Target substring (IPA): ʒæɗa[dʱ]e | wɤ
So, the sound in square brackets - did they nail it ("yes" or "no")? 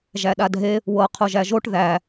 yes